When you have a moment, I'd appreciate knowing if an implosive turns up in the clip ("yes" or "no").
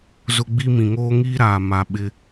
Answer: yes